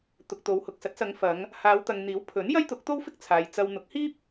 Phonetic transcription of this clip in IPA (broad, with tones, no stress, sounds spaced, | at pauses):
t̪ ʊ˨ k̚ t̪ o˨˧ w h ʊ˨ k̚ s ɐ˨˥ t̚ s ɐ˨˧ ŋ f ɐ˨˧ ŋ | h aː˨˧ w t̪ ɐ˨ ŋ n̪ iː˨˥ w pʰ ɵ˨˥ n j ɐ˥ j t̪ ʊ˨˥ k̚ t̪ o˥ w f ɪ˥ k̚ t͡sʰ aː˨ j t͡s ɐ˧ w n̪ ʊ˨˥ k̚ h iː˥ p̚